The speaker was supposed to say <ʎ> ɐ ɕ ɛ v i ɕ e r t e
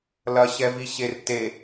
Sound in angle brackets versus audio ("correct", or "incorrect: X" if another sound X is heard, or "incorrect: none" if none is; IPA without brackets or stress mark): incorrect: l